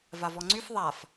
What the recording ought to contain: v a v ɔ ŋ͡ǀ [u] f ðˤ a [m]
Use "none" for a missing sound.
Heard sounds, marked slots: y, f

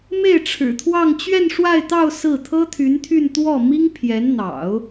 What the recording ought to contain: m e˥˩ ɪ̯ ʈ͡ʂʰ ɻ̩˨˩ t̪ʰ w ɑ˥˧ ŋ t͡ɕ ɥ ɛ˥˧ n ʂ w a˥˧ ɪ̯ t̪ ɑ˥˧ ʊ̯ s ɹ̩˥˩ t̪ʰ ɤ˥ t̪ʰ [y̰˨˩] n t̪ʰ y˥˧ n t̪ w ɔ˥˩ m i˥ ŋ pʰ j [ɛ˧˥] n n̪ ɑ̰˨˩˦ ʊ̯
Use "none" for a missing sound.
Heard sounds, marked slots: y˧˥, ɛ˧˥

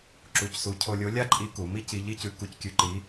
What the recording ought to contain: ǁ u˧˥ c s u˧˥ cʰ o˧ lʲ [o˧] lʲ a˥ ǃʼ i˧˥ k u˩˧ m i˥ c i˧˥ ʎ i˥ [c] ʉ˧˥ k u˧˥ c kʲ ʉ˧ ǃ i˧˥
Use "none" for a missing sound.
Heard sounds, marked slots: o˧˥, c

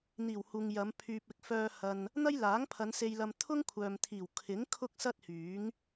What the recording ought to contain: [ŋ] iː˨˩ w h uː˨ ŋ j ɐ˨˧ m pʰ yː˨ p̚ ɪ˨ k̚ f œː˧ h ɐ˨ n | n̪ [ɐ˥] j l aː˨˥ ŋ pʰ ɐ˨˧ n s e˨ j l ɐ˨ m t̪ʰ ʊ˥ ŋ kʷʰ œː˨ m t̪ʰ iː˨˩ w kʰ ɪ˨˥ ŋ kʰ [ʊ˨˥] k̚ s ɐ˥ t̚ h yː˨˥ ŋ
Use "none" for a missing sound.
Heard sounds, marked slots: n̪, ɐ˥, ʊ˥

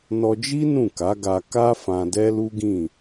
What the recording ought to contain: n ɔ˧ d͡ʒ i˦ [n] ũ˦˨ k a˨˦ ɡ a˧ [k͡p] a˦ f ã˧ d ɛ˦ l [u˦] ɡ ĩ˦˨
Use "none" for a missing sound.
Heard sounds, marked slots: n, k, u˦

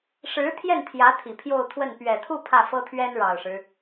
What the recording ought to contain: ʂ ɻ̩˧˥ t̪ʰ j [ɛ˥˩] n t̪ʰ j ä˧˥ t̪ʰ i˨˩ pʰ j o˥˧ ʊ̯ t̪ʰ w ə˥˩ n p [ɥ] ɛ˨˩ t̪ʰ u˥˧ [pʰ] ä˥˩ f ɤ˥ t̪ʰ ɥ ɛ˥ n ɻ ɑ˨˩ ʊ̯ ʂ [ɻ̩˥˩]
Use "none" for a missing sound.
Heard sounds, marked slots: ɛ˥˩, ɥ, pʰ, ɻ̩˦

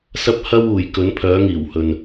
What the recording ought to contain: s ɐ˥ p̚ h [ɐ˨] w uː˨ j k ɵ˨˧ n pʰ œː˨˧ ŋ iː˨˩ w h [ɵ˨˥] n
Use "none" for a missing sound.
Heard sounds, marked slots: ɐ˥, ɵ˨

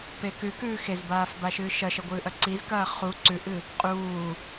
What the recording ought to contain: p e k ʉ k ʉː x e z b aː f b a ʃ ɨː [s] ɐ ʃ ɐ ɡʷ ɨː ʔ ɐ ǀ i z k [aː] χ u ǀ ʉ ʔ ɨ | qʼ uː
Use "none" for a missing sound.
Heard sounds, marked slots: ʃ, ɐː

